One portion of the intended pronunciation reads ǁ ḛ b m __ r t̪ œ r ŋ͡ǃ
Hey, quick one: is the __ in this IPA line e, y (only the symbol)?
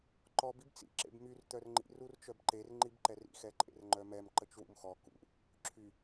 y